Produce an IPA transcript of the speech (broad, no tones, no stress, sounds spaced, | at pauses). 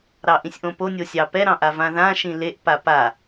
ɾ ɑ ʔ ĩ sʲ ʔ õ p o nʲ o sʲ ɑ p ɛ ɾ ɑ̃ ʔ a v ã ð ã ʃ ĩ l e ʔ p a p a